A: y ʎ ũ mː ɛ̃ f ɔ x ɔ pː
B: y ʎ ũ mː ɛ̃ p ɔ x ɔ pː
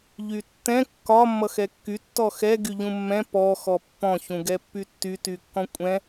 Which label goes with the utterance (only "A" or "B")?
B